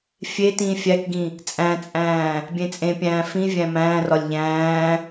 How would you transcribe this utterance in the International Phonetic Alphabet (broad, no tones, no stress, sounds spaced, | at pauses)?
fʲ e t ĩː fʲ æ k ɡ ĩ | t͡sʼ æ̃ t͡sʼ æ̃ː | bʲ ẽ t͡sʼ ẽ pʲ æ̃ː f ĩ vʲ æ̃ m æ̃ː r ɒ lʲ ʎ æ̃ː